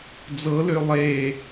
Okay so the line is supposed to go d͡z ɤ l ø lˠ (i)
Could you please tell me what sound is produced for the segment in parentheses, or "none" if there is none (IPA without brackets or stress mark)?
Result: e